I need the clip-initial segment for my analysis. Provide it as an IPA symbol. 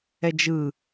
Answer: ɛ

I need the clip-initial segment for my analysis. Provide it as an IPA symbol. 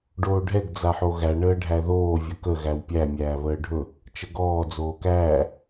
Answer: ɖ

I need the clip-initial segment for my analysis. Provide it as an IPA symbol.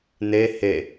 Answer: n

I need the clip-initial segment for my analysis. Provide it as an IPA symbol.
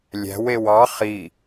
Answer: lʲ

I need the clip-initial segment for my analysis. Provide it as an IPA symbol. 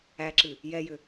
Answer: æ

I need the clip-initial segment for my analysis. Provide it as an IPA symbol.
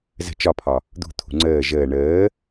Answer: z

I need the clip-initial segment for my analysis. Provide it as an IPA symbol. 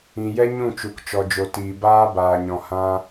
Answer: ĩ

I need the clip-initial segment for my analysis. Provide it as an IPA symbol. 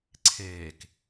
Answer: ǀʰ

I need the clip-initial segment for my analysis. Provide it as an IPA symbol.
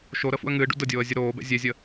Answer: ʃ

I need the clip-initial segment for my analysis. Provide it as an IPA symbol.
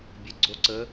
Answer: bʲ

